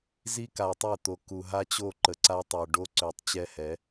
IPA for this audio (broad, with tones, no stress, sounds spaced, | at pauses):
z i˦ k a˨ tˤ ø˦˨ t̪ o˨ k u˨ ɦ a˦ t͡ɕ o˦˨ ǃ ə˨ ǀ a˦ tˤ ø˨ ɖ o˦ ǀ ø˨ tˤ t͡ɕ ɛ˦ h ɛ˨˦